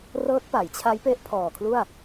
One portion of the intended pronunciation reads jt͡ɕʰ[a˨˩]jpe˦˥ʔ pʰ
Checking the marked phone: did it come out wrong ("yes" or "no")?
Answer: yes